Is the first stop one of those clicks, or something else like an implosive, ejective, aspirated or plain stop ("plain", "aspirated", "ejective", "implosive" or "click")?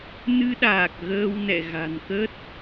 implosive